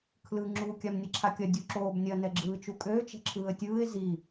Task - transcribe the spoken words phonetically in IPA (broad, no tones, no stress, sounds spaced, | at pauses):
kʰ l ɯ ŋ͡ǁ u kʲ a m nʲ ɐ ǁʰ a kʲ ɐ dʲ u ǁ oː b nʲ ɐ n ɛ ɡ͡ǁ ɯː t͡ʃ u kʼ øː t͡ʃ ɛ̤ ǁʰ ɯː ə̯ tʲ ɯː ɪ̯ z i